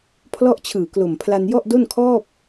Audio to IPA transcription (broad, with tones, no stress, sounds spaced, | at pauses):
pʰ l ɔ˥˩ ʔ t͡ɕʰ ɯː˨˩ k l o˨˩ m pʰ l a˧ n j ɔ˥˩ ʔ d o˥˩ n kʰ ɔː˥˩ p̚